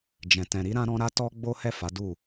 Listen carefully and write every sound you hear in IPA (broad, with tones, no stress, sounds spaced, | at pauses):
d͡ʒ ɛ̃˨ t ɛ̃˨ ɾ i˧ ɾ ã˧ ɾ ɔ̃˧ ɾ a˦ t ɔ˦ ɡ͡b o˦ h ɛ˦˨ f a˨˦ d u˦˨